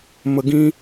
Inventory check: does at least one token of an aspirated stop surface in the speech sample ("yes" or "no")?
no